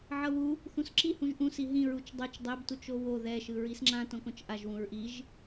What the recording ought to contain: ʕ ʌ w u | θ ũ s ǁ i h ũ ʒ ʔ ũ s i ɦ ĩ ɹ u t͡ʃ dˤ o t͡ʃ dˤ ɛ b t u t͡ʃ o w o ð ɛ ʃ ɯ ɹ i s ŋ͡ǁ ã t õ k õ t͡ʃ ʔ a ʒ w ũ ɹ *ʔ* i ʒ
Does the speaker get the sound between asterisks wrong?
no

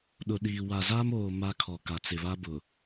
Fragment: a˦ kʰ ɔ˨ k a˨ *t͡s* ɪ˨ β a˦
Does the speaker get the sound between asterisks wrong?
no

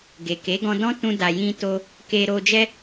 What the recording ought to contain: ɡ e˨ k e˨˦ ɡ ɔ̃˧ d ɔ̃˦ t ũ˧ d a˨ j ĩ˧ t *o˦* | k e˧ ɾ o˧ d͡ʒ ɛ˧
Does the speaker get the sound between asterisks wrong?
yes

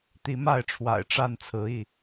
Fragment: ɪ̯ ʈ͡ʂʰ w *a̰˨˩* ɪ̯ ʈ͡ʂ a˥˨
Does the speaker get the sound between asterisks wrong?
no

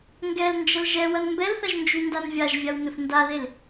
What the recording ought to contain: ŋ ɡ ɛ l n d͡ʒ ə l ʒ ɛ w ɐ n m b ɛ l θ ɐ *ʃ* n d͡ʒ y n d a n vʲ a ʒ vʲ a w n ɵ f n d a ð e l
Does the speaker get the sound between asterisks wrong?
yes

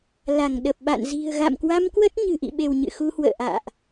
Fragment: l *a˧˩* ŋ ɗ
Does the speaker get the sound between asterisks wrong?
no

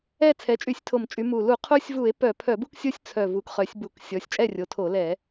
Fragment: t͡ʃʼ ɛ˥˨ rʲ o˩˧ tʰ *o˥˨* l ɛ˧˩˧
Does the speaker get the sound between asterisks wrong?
yes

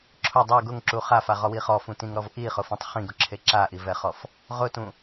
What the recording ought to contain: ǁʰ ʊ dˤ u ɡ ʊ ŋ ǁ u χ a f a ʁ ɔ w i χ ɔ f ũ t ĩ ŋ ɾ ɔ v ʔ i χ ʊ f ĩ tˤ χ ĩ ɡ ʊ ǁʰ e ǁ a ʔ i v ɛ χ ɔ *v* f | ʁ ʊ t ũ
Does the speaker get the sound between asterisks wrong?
yes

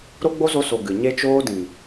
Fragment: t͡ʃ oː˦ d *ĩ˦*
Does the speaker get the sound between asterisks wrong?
yes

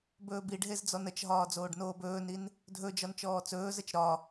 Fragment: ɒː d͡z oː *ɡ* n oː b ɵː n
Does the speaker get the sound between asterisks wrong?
yes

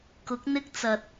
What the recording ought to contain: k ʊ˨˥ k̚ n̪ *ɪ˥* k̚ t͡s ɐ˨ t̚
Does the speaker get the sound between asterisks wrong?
no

